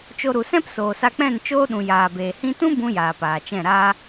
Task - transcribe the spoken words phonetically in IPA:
t͡ʃo˧ ɾu˨sɛ̃˦p soː˨sa˧k͡pɛ̃˦˨n t͡ʃoː˦ɗũ˨jaː˨beː˨ hĩ˧tũ˦ bũ˧ jaː˨paː˨t͡ʃɛ̃˦˨ ɾaː˧

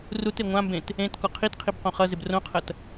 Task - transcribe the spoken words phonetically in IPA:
rute ŋʷãmbẽt | ẽt kɔqʰitqʰib qõχʌzɪb rõqʰɐt

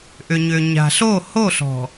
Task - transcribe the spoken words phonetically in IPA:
ʔʏ˨ɲʏ˨ ɲa̤˨ɬo˦˨ ho˦˨ɬɔ̤˨

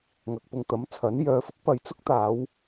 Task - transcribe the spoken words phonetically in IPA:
ŋɐ˨k̚pʊ˧ŋt̪ɐ˨˥mt͡sʰɐ˨˥n jœː˨˧fʊ˨˥k̚ pɐ˨jt͡sʊ˥k̚t̪aː˨˧w

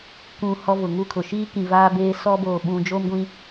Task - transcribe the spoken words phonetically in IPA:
kʷũ˨ hɔ˦vʊ˨ ŋu˦kʰʊ˨ ʃiː˦kĩ˨ vaː˦beː˦ sɔ˦boː˨ ɓũ˨ d͡ʒoː˦mɡʷĩ˨

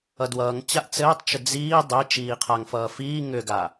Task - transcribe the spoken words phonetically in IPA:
ʌdwʌːŋt͡ɕaʔ t͡sɘːtˤt͡ʃʏ d͡ziː dˤe t͡ʃiːqʰaŋfʌː fiː ŋʏɡa

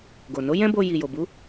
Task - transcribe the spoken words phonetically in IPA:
ɡo˨no˨˦jɛ̃˦bo˧ ji˨jo˨bu˨˦

